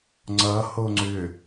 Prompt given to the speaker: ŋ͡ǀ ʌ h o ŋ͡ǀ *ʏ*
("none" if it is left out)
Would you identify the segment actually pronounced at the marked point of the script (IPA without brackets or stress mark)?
ʏ